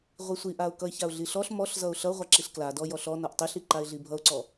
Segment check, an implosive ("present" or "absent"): absent